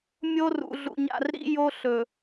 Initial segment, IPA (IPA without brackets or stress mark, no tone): mʲ